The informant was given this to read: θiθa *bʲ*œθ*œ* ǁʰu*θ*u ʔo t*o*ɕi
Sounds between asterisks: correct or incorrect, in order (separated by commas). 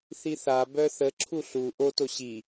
incorrect, incorrect, incorrect, correct